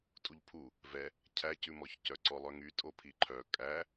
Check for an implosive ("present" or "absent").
absent